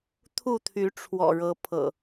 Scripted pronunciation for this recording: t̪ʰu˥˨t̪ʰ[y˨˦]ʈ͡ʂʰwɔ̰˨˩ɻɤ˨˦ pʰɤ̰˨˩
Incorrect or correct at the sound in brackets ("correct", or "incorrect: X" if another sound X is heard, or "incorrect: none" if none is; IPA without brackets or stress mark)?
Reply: correct